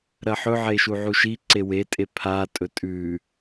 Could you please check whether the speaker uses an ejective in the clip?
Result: yes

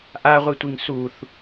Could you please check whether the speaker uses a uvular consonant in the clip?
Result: yes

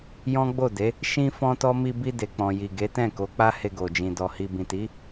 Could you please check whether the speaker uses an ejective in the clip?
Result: no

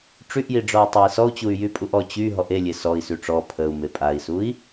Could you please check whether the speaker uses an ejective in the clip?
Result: yes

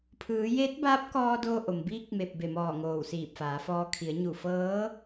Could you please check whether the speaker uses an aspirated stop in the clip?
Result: yes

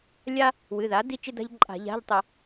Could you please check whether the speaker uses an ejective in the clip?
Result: yes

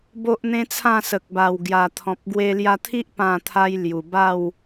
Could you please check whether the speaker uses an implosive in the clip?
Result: no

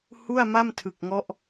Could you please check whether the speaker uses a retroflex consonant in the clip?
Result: no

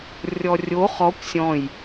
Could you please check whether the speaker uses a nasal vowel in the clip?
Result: yes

